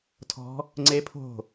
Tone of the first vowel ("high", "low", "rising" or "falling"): rising